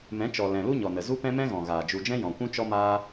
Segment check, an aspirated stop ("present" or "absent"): absent